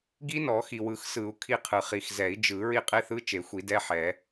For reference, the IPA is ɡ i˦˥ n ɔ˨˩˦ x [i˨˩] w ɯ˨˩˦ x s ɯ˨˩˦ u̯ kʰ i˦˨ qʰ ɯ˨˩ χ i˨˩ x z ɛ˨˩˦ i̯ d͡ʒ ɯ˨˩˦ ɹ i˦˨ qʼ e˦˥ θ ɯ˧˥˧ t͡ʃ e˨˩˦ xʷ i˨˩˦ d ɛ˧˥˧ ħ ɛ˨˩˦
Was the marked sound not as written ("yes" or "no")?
no